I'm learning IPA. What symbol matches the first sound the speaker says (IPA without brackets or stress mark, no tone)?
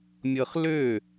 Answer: mʲ